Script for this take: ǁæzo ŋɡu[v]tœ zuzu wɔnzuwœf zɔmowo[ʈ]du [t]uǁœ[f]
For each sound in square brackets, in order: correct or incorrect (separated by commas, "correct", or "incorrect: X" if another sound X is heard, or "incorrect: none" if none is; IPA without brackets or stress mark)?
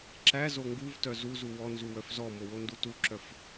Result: correct, incorrect: n, correct, correct